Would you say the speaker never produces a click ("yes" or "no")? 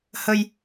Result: yes